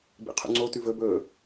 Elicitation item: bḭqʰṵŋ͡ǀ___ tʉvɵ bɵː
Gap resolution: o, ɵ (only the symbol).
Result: o